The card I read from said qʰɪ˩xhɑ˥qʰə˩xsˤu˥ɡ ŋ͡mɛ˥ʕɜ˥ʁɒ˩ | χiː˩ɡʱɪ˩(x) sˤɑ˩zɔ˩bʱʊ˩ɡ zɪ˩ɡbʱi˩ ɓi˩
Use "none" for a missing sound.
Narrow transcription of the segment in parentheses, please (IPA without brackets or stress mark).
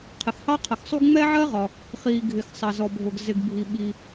x